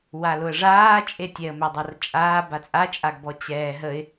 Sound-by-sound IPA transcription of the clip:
w a l ʊ ə̯ ʐ aː t͡ʃʼ e tʲ ɛ ə̯ m e dˤ a r t͡ʃʼ aː b a t͡sʼ a t͡ʃʼ a ɡ b ɔ t͡ɕ ɛː ɦ ə ɪ̯

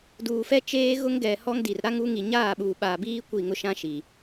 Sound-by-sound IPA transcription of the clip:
d uː˨ f ɛ˦ t͡ʃ eː˦ ɣ ʊ˦ ŋ ɡ ɛ˨ h ɔ˦ ŋ d i˨ r ɾ a˦ ŋ u˦ ŋ i˨ ɲ aː˦˨ ɓ uː˨ ɓ aː˨ b iː˦ kʷ i˦˨ ŋ ʊ˦ ʃ ã˦ ʃ i˨

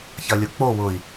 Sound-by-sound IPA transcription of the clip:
ç ɐ lʲ ʊ k͡p o w ʊ i̯

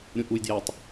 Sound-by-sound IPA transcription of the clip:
ɾʲ ũ ʔ u j d j æ tˤ

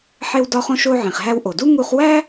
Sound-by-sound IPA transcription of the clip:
ħ e˧ w d ɒ˧ χ õ˧ ʃ o˧ ʕ ĩ˩ χ ɦ æ˧ w ʔ o˩ d u˥ ŋ u˧ χ w æ˥

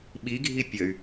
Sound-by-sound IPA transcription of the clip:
ɓ i ɡʱ i pʲ ə y̯

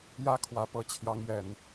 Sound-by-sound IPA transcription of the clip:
j ä˦ kʰ w ä˨˦ p ɤ˨˦ t͡ɕʰ j ɑ˨˦ ŋ ɥ ɛ˨˩ n

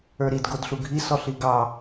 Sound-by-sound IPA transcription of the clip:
ə˞ ɾ i d ɡ o d ɬ u ɡʱ i s ɔ ɬ i ɡ ɑ

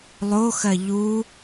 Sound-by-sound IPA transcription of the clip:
lˠ o x ɜ ʎ u

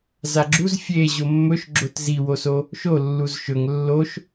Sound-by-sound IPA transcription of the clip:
z a ɡ͡ǁ u z fʲ e ʑ o mː ɵ ʃ ɡ͡ǁ o t z i w o s o | ʃ o lː u z ʃ ɵ ŋ lː o ʃ

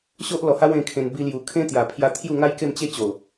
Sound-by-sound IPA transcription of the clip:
ɕ o˦ ʔ l ɔ˨˩ h a˦ w ẽ˧ kʰ ẽ˧ n b i˧ l j u˨˩ kʰ ẽ˦ t̪ j a˨˩ pʰ j a˧ t̪ʰ j u˥˧ ŋ a˦ j k e˥˧ m t͡ɕ e˦ t͡ɕ o˨˩

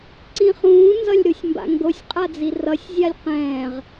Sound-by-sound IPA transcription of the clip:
ǀ ĩ χ ũː n z ʌ lʲ ɾ u sʲ m b a̰ ŋ ɡ o sʲ qʼ a d͡z i r ʌ sʲ zʲ a lʲ q ɛ̃ː ʁ

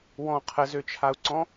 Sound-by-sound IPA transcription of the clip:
w ɔ̃ qʰ ə z ø t͡ʃʰ a u̯ ǀ ɔ̃

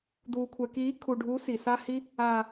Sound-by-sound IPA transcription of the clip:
d̪ uː˨ kʷʰ ɛ˨ k iː˨˦ kʰ u˨ ɖʱ u˨˦ s i˨ s a˧ h i˧ | aː˨

